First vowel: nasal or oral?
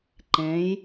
nasal